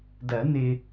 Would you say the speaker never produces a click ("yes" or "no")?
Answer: yes